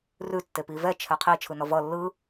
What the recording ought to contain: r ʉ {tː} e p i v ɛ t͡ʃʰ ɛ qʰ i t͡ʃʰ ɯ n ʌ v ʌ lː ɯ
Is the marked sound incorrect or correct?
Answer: correct